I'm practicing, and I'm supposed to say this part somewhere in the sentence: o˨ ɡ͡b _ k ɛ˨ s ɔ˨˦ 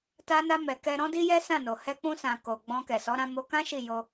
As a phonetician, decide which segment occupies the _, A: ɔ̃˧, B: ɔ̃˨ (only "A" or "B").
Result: A